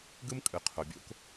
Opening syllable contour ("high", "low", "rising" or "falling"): high